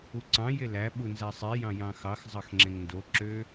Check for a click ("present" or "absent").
present